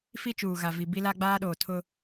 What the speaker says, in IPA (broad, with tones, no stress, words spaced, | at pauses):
fi˦t͡ʃuː˨ɣa˨vi˨ bi˦la˦ɡ͡baː˦ɗoː˨ tʰʊ˦